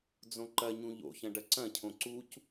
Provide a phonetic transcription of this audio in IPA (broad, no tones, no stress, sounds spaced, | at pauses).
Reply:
d͡z õ ǃ ɐ ɲ ũ ʎ o̰ ç ɐ̃ ɖ ɐ ǀ ɐ̃ cʰ õ ǀ u c